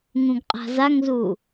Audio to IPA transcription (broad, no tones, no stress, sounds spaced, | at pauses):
ŋ ũ ɡ qʼ a̤ z a ŋ z u